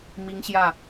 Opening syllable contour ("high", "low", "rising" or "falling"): high